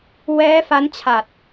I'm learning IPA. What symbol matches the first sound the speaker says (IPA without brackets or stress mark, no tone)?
w